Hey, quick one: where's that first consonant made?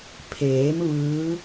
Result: lips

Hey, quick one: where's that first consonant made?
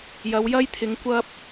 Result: palate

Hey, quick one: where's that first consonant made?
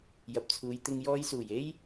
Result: palate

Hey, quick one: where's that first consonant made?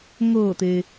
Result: velum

